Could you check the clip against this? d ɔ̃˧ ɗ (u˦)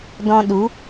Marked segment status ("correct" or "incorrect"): incorrect